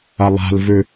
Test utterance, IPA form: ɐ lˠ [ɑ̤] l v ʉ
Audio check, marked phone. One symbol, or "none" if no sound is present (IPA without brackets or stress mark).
a̤